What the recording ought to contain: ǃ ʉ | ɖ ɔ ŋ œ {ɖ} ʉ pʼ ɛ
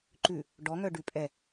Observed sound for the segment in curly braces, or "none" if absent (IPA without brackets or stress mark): ɖ